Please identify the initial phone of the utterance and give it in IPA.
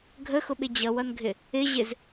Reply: ɡʱ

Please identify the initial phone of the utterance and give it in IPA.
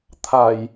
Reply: t̪ʰ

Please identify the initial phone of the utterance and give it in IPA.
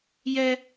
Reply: j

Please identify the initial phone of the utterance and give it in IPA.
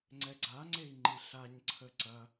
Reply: ŋ͡ǀ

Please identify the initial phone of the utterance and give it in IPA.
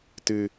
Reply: t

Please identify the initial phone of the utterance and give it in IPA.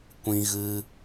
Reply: kʷ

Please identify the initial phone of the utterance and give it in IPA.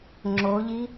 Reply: ŋ͡ǁ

